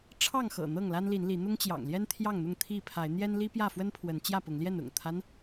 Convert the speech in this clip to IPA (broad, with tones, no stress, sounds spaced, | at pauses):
ʈ͡ʂʰ ɑ˥˨ ŋ x ɤ̰˨˩ n̪ ɤ˥˨ ŋ l a˦ n l i˨˦ n l i˨˦ n̪ ʊ˦ ŋ t͡ɕ j ɑ̰˨˩ ŋ l j ɛ˦ n t̪ʰ j ɑ˥˨ ŋ n̪ ʊ˥˨ ŋ t̪ʰ i˥˨ pʰ a˨˦ ɪ̯ n̪ j ɛ˦ n l i˦ p j ä˥˨ f w ə˦ n pʰ w ə˨˦ n t͡ɕ j ä˥˨ p ʊ˨˦ ŋ l j ɛ˥˨ n ʊ̰˨˩ ŋ t̪ʰ a˦ n